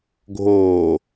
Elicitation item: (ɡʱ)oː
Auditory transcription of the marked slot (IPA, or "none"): ɡʱ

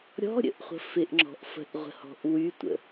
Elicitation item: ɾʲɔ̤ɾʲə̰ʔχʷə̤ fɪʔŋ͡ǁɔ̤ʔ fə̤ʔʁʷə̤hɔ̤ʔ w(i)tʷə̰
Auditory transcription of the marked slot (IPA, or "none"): y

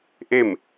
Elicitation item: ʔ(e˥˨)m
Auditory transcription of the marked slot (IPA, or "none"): e˥˨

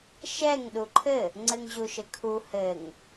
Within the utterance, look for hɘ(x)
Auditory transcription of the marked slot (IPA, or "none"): ŋ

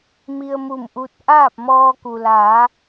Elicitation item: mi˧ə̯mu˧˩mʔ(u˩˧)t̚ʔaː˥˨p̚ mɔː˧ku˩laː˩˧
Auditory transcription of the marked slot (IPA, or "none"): u˧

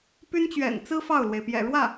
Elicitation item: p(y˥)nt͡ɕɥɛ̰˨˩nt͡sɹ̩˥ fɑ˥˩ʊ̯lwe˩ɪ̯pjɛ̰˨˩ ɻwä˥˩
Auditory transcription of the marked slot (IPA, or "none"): y˥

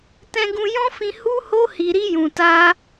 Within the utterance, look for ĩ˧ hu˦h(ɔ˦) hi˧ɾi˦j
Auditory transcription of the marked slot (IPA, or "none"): o˦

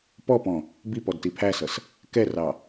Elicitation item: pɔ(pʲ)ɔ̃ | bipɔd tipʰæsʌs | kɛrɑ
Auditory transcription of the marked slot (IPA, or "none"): p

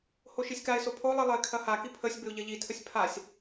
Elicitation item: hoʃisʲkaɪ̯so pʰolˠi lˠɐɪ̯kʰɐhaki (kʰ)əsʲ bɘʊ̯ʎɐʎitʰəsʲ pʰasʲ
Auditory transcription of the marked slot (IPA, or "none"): pʰ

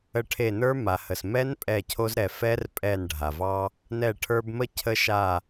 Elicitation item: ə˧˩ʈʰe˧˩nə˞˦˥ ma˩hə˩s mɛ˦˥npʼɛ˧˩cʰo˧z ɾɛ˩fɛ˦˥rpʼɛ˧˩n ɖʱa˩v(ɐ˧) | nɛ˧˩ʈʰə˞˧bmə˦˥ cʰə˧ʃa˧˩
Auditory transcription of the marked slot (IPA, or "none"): ɑ˧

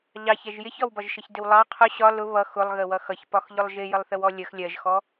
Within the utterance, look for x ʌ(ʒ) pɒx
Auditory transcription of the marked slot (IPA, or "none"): ç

